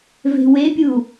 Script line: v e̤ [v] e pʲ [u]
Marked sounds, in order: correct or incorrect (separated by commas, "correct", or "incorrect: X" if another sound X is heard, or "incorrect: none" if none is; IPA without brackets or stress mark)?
incorrect: w, correct